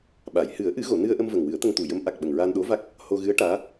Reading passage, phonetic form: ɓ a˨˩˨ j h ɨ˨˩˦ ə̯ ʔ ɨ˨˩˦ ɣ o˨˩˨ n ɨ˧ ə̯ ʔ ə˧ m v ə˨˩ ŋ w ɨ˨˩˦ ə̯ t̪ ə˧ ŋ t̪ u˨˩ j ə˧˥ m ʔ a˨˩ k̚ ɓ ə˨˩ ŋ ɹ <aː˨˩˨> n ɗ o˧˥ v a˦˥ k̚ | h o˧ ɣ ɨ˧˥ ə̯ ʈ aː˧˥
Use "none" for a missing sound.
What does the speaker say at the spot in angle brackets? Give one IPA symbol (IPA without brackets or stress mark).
aː˧